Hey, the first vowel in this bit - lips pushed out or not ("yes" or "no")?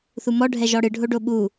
yes